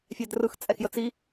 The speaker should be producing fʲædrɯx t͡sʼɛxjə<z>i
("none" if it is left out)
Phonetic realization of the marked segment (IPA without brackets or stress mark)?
t͡s